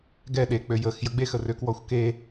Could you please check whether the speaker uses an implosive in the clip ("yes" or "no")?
yes